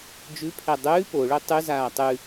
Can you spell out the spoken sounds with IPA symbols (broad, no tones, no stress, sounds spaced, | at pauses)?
d͡ʒ ʉ pʰ ɛ dˤ ʉː p o ɭ ø tˤ ʉ z aː tˤ ʉ